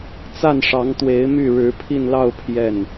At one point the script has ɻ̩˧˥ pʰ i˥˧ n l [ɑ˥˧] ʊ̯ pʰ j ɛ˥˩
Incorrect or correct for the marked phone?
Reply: correct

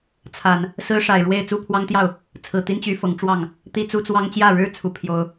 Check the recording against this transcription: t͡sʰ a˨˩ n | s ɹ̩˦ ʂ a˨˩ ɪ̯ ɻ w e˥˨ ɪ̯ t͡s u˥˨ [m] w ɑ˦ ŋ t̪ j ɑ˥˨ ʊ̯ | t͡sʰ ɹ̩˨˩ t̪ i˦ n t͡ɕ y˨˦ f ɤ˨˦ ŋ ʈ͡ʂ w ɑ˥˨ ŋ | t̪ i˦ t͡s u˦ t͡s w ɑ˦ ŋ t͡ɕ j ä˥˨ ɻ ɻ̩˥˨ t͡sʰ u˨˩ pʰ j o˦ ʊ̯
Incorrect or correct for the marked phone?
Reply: incorrect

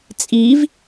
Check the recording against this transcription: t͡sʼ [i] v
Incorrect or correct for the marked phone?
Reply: correct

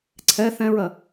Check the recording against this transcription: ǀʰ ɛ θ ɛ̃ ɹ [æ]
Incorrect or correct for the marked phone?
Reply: incorrect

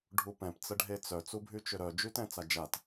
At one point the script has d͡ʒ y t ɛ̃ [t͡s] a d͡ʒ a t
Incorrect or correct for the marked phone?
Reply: correct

